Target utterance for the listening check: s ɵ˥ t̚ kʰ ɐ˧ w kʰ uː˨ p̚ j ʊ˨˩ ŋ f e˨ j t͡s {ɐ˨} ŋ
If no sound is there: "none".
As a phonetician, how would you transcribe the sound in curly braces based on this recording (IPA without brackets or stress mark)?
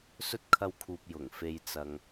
ɐ˨